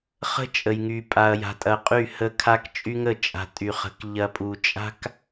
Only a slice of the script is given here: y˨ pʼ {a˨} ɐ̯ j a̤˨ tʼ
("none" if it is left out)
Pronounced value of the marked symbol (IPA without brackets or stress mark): a˨